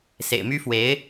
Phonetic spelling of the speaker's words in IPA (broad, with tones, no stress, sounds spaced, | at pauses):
s ḛ˨˩ ɪ̯ m y˥ f w e˧˥ ɪ̯